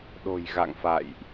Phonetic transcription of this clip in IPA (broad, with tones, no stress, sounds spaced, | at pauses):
ɗ o̤˨˩ j ɣ a̰˧˨ ŋ f a̰˧˨ j ʔ